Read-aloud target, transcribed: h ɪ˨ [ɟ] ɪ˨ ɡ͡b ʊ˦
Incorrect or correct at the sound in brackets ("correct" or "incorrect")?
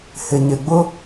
incorrect